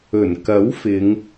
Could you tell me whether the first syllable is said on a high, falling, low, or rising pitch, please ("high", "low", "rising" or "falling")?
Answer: low